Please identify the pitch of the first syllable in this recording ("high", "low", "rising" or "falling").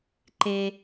high